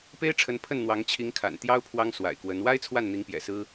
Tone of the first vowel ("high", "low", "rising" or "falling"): high